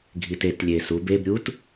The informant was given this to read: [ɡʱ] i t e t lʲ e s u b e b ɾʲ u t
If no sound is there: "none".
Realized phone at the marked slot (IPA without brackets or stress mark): ɡʱ